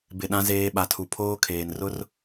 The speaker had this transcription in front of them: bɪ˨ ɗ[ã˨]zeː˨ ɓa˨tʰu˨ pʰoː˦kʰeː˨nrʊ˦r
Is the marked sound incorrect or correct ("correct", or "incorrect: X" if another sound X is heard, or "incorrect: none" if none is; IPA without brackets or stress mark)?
correct